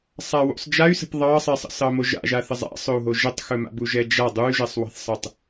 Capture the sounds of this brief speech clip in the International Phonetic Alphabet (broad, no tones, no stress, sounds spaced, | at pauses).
sˤ a w ṵ sˤ d͡ʒ a y̯ s ə̤ p ðˤ ɑ sˤ ɛ sˤ ə̰ s ɑ m o ʒ a̰ ʒ a θ ə zˤ a̰ sˤ ɵ u̯ ɦ o ʒ ə tˤ x ɵ m a̰ b u ʒ ɛ d͡ʒ a dˤ u y̯ ʒ ɛ sˤ w ɑ̤ θ sˤ ə tˤ